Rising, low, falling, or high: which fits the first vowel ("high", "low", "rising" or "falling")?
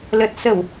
low